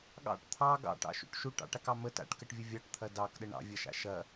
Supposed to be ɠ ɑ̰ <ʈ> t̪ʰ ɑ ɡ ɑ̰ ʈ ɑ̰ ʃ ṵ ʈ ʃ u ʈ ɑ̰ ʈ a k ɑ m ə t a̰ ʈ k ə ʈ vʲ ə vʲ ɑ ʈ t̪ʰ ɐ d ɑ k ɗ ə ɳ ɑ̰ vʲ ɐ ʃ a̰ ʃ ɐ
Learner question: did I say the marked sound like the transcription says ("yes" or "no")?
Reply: yes